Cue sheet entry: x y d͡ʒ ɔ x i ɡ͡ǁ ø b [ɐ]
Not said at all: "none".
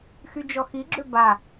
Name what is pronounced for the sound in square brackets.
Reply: a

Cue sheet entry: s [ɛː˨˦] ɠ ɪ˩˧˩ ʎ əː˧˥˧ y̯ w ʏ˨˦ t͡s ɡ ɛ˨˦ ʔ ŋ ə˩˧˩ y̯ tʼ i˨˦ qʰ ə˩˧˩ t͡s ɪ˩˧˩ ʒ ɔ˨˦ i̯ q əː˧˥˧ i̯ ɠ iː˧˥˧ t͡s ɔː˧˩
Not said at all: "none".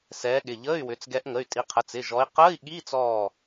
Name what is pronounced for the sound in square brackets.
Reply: ɛː˨˦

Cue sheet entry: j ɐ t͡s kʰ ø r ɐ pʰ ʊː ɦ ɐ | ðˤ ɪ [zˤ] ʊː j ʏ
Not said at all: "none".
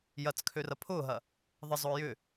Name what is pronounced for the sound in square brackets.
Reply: zˤ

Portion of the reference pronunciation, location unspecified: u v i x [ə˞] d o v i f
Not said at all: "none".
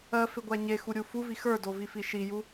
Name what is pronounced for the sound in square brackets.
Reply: ə˞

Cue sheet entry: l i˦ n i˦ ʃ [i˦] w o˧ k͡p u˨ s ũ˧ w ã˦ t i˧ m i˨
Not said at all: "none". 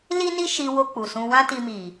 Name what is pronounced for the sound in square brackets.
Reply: i˧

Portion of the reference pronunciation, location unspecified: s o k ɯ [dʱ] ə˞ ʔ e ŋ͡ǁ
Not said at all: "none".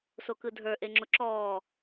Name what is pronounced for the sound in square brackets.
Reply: dʱ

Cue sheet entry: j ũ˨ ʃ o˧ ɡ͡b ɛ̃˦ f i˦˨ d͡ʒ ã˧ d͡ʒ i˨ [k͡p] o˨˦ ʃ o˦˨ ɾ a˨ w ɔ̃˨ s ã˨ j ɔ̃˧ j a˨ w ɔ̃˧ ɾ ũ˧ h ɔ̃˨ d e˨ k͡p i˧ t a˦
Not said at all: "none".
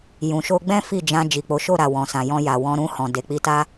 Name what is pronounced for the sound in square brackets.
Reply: k͡p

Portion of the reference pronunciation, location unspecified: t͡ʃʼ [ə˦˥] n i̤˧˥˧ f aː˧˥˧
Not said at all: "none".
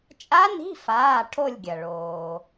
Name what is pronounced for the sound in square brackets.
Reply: a˦˥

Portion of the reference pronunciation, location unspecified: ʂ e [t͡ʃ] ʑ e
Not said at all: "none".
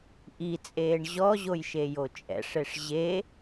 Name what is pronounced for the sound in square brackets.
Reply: ʂ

